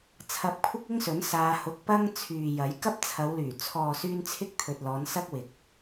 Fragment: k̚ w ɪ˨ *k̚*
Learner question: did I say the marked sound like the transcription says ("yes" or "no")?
yes